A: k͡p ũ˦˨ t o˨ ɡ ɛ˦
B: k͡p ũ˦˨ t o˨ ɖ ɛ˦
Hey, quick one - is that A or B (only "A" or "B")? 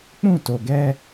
A